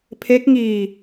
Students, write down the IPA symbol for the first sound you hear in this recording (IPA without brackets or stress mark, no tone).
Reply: pʰ